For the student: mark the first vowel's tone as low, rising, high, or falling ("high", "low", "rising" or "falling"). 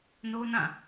high